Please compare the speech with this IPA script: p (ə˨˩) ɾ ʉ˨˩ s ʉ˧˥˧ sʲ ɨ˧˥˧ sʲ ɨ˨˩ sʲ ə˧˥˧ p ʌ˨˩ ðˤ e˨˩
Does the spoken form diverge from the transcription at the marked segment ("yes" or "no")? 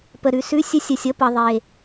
no